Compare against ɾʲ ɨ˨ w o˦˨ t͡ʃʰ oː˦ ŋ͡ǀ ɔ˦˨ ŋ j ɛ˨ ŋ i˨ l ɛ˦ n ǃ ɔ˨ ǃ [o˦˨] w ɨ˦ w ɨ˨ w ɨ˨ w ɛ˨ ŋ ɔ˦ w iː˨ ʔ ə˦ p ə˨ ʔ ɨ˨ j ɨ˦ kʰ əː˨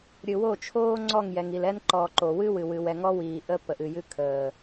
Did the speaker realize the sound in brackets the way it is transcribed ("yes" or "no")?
no